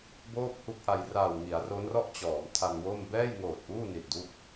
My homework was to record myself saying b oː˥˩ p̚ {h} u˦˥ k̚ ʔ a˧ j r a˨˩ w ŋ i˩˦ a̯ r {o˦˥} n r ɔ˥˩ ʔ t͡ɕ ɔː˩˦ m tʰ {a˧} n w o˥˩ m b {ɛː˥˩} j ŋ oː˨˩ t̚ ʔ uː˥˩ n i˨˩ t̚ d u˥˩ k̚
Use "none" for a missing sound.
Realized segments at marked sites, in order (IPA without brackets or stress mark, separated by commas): h, o˦˥, a˧, ɛː˥˩